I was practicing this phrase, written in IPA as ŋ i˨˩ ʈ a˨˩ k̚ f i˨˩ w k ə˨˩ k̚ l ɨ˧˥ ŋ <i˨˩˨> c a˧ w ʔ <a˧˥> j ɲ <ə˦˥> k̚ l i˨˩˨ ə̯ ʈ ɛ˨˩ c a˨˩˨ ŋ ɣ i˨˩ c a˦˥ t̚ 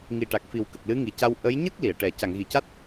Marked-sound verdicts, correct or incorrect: incorrect: i˨˩, incorrect: ə˧˥, correct

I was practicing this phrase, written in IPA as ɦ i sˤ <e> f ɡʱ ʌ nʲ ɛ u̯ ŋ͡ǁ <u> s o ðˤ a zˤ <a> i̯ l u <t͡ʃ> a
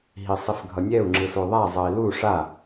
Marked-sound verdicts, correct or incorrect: incorrect: i, incorrect: ɯ, incorrect: ʌ, incorrect: ʂ

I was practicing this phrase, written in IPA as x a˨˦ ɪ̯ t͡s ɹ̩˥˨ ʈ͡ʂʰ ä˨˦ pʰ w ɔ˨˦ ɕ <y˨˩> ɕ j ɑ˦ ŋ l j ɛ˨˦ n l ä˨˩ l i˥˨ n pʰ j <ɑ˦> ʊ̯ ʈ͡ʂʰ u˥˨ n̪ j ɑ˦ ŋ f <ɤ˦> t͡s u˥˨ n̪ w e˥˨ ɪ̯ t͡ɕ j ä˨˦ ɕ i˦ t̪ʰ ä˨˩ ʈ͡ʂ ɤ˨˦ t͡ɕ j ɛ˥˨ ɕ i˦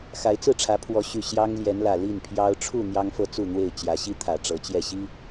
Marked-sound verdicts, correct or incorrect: correct, correct, incorrect: ɤ˥˨

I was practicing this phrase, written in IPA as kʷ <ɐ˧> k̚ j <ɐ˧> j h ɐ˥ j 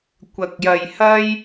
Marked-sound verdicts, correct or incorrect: correct, correct

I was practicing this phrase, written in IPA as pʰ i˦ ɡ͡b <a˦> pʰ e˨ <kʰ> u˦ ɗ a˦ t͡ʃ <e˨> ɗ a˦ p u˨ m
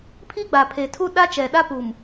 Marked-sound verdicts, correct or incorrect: incorrect: a˨, incorrect: tʰ, incorrect: ɛ˨

